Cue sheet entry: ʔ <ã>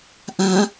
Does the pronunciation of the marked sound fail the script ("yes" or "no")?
no